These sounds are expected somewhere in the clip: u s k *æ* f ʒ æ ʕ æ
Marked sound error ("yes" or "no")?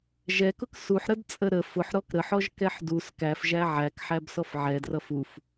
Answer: no